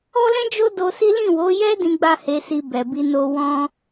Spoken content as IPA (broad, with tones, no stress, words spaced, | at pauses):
ɔ˦lɛ̃˦d͡ʒo˦ do˧si˦ lĩ˦˨wo˨˦jɛ˦ dĩ˦ɡ͡ba˦he˧si˧ bɛ˨bi˧ no˧ wɔ̃˦